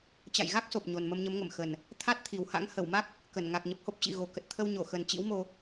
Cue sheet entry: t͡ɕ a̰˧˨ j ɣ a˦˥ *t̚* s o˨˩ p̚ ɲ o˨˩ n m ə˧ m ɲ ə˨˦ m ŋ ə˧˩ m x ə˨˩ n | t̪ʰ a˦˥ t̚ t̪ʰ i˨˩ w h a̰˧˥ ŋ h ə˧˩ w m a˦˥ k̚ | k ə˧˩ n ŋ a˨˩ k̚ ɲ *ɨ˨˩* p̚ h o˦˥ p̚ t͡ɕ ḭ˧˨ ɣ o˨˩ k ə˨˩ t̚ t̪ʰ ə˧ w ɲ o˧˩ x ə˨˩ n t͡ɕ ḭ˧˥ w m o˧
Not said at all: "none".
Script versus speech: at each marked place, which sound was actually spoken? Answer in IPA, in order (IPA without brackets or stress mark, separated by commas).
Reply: k̚, ə˨˩